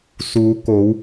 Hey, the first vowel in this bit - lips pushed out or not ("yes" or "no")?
yes